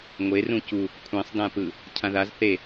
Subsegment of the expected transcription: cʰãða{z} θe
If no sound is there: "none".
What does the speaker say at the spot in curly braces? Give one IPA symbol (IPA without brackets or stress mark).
z